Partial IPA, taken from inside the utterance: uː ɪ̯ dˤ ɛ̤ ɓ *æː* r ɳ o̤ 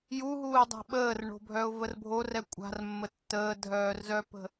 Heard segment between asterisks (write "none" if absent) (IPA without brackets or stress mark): əː